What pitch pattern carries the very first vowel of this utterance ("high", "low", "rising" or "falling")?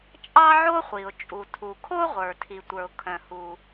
high